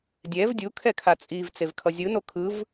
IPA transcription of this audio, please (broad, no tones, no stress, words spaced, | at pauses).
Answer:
dʲɛv dʲu kʰɛkʰat͡sʼiv t͡sevkʰʌzʲɯ nokʰɯv